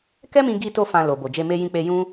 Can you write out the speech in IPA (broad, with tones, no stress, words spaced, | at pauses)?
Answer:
kɛ˦mĩ˧ɡi˧to˧ fã˧lo˨ bo˨d͡ʒe˧ me˧jĩ˧k͡pe˧ jũ˦